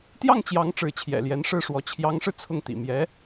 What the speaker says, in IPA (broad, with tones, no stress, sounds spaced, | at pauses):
t̪ j ɑ˥˩ ŋ t͡ɕ j ɑ˧˥ ŋ ʈ͡ʂ ɻ̩˧˥ t͡ɕʰ j ɛ̰˨˩ l j ɛ˧˥ n ʂ ɻ̩˥˩ ʂ w ɔ˧˥ t͡ɕʰ j ɑ˧˥ ŋ ʂ ɻ̩˧ t͡sʰ ʊ˥˩ ŋ t̪ ḭ˨˩ m j ɛ˧˥